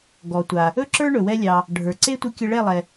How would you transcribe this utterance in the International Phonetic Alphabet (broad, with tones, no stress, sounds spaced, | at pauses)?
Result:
ɡ ɔ˩ tʷ a˩ | ɵ˥ ǁ ə˞˥ ɳ ɵ˩ w ɛ˧ lʲ ɑ˩ | ɖʱ ə˞˩ ǀ e˥ tʷ ɨ˧ kʲ ə˧ ɭ ɛ˥˩ lˠ ɛ˩